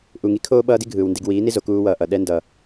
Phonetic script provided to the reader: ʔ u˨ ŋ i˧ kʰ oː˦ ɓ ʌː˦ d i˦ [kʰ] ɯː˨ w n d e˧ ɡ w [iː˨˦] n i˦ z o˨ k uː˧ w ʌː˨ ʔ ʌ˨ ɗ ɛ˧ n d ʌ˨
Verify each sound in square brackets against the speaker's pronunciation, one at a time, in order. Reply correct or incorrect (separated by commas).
incorrect, correct